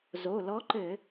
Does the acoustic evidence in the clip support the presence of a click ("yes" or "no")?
yes